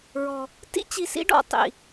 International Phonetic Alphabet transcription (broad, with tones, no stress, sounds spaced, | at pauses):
ɹ ɔ˨ | t ḭ˦ t͡ɕ i˨ s ḭ˦ ɖ ɔ̰˦˨ tˤ ḭ˨